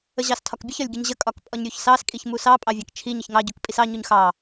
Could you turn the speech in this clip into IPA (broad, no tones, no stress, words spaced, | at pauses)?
əʑɑstʰɒkbʲəç ɒlʲɡʲəɲʑə kʼɒkpʼɒɲɾʲuçsɑs kʼiçmusɑ pʼɑvʲɑkt͡ʃʰi ɲəçŋɑ ɟukpʼisɑ ɲuɲxɑ